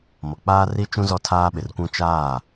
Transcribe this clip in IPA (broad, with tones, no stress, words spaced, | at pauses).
mɔ˨k͡paː˦ri˦t͡ʃũ˦ zɔ˦tʰaː˦ɓɪ˨rkʷũ˦ t͡ʃaː˦˨